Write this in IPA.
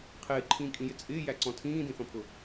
qʰɪːǃʰĩːkʼĩjɪ t͡sʼɪːjæǀɔ̃ tʰĩːdĩθɔ̃pʰʊ

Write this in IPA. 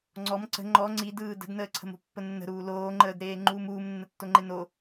ŋ͡ǀɔm ǀə̤ ŋ͡ǃɔ ŋ͡ǀidɯː də̤dnəːǀʰə̤mo̤ pːənːə̤ɾuː loːŋ͡ǃəːdɾeː ŋ͡ǃuːmuːmnːətːo ŋ͡ǃeno

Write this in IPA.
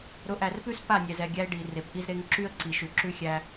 ɾʊ˨˦ʔæ˨rpʉ˦s pa˦˨nʲɛ˨zɛ˨ ɡʲæ˦ɪ̯ɖi˨re˨p ʔi˦zɾe˦ŋ ǁy˦ə̯ǀi˨ʃʉ˨ ǁʉ˦xʲæ˦

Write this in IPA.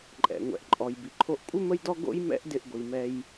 ǃʼɛ̰˩ŋʷɛ̰˩ʔǃʼɔ˩j bi˩ǃʰo˧ʔkʷʼɪ˥ mə˥jdɔ˥ ɡo̰˥jmɛ̰˥ʔdɪ˧ʔ ɡʷi˩mɛ˧j

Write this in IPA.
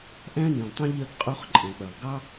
ʔæ̃˥nĩ˩lˠtˤũ˥ ʎɜ˥ɡqʼu˥χ ǃʼɛ̃˩k͡pɜ˩lˠ ɡɑ˥

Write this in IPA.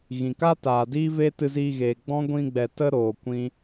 ɣĩ˨ka˦ taː˨diː˦ve˦ tɨ˧ziː˧ɣeː˨ɡ͡bɔ̃˦ ɡʷĩ˧ɡ͡bɛ˨ tə˦ ɾoː˨ kʷĩ˦

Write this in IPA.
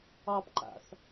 ɑpǃa̰θ

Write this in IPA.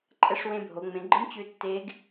ǃʼɛ˧˥ʂwẽ˧bʱo˩˧ ŋ͡mẽ˩˧ɡ͡ǃɯ˧˥m t͡ɕʉ˧tːe˧˥ɡ

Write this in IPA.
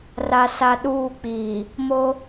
ra˨sa˨ ɗuː˦˨k͡piː˨ | mo˦

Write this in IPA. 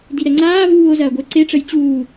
diɾɛŋ͡ǀaː vuːo̯zɐːɡʷəe̯ ǀeʈ͡ʂəj t͡ɕuː

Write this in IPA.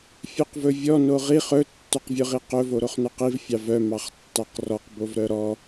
fʲœqvɵvʲɔ noʁiχ ɵ tːœqvʲɵʁiqɵ voɾoχnœqiv fʲɑvœ mɑχtːɑqrɔq bovɾœɾɔ

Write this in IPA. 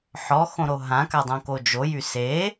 ħɔxõɾo ɦãkadˤõko d͡ʒojy se

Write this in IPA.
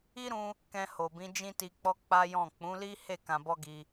i˦ɾũ˧ | kɛ̃˧ho˨bĩ˨˦ d͡ʒĩ˦ti˧k͡pɔ˦ k͡pa˦jɔ̃˦˨ k͡pũ˨˦li˦he˦˨ kã˧bɔ˦ɡi˧

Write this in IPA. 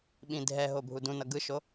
ɓĩdʱɛɦo bʱudũnʌ ɡɯʃo

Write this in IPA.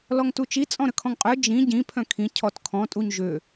lɔŋtut͡ʃi t͡sʼɔ̃ɾəkʰɔ̃ŋqʼœ d͡ʒĩ ɟĩ pʰœ̃kʰĩ cʰɔtkʰɔ̃ tʼuɲʒø

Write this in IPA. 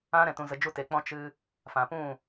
ã˦ ɾɛ̃˧tũ˧zə˧ d͡ʒu˦te˧ k͡pɔ̃˦ t͡ʃɨ˦ | fã˨pũ˦˨

